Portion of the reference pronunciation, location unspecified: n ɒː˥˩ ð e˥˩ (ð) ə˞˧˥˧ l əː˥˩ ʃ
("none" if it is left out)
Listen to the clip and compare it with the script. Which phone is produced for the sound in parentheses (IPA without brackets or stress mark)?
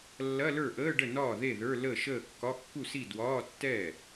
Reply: ð